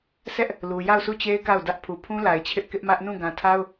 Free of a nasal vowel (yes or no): no